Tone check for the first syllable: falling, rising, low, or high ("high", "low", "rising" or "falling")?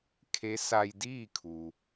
rising